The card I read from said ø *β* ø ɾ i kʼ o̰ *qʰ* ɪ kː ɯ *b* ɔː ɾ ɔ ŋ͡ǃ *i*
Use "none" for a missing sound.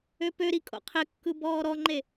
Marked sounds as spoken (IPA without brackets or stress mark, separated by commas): p, qʰ, b, e